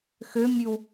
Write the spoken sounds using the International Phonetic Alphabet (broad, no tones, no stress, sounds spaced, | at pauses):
x ø mʲ ʉ w